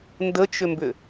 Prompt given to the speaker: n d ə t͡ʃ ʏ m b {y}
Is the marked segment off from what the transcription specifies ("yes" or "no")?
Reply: yes